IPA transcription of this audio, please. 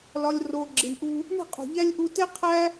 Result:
l ɒ˧ lʲ r o˧ ɡ͡ǁ i˨ ɳ ʔ u˧ | ɳ i̤˦˨ qʼ ṳ˨ ʎ æ˦ lʲ ʔ u˧ t e˦ qʰ æ˦

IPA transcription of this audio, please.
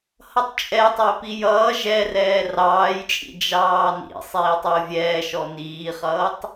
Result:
h ʌ tˤ t͡ʃʼ ɛ tˤ ɛ p i j ʌː ʒ ɛ r ɛː r ɑː j t͡ʃʼ ḭ d͡ʒ ɑː n ḭ sˤ iː tˤ i ʊ̯ vʲ ɛː ʃ ɔ n iː χ ʌː tˤ

